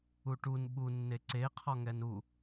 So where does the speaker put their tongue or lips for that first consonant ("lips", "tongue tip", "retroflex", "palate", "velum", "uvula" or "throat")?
retroflex